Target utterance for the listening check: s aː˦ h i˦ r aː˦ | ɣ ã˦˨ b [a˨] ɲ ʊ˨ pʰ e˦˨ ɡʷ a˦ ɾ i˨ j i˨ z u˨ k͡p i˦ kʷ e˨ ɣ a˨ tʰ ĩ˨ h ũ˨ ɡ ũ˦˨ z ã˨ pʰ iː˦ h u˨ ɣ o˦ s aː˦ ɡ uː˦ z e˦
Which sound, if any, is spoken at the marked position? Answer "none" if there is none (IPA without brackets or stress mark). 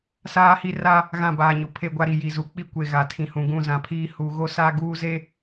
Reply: aː˨